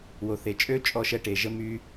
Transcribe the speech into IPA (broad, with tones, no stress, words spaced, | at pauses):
wo˩θe˩ t͡ʃʼøː˥ t͡ʃʼɔ˧ʃɛ˧ʈe˩ ʒə˧ my˧